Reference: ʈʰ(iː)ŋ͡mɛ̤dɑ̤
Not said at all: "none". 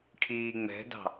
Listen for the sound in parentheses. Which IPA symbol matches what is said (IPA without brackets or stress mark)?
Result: iː